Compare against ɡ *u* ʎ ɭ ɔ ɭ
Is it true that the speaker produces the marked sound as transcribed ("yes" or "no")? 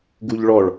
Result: yes